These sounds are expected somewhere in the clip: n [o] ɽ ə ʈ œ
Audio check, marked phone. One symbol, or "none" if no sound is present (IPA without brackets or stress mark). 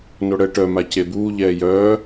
o